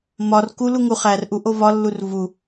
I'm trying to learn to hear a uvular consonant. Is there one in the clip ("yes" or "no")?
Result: yes